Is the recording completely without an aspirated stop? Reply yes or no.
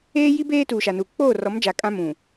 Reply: yes